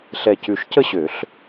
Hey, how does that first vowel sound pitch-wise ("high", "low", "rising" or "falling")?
low